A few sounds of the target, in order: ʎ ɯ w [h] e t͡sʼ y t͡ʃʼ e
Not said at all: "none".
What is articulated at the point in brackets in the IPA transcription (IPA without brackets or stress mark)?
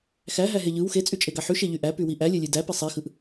x